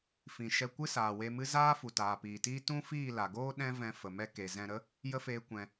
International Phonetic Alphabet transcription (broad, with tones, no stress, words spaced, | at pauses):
fĩ˨ʃɛ˧ kʷɨ˦saː˨we˧mɨ˦ zaː˦fu˨ taː˨piː˨tiː˦ tũ˦ fiː˦˨la˨ɡoː˦ ɗɛ̃˦ vɛ̃˧ fə˨mɛ˧ ke˨zɛ̃˧ɾə˦ | jə˦feː˧kʷɛ̃˨